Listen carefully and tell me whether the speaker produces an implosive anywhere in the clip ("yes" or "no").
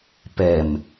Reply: no